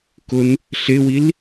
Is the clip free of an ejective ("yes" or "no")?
yes